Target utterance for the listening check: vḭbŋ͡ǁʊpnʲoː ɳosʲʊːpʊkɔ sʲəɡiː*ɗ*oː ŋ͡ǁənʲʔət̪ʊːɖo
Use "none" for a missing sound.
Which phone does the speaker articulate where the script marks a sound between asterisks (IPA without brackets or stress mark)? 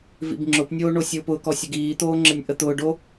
t̪